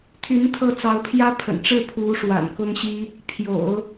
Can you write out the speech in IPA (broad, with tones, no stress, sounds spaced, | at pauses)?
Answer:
t̪ʰ y˧˥ n t̪ʰ ɤ˥˩ t͡s ɑ˧˥ ʊ̯ pʰ j ä˥ pʰ ə̰˨˩ n ʈ͡ʂ ɻ̩˥˩ pʰ u˧˥ ʂ w a̰˨˩ n k ʊ˥ ŋ ɕ i˥ | pʰ j o̰˨˩˦ ʊ̯